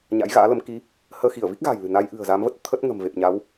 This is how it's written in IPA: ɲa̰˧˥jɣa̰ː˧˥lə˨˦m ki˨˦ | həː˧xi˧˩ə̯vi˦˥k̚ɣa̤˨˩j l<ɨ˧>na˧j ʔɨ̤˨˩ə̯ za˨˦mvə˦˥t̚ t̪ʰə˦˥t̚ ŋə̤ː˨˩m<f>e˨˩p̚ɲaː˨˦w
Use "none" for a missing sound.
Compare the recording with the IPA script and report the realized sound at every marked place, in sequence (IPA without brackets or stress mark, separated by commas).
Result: ɨ̤˨˩, v